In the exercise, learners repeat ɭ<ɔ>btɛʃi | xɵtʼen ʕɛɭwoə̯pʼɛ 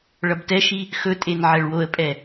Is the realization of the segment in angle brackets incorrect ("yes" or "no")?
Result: yes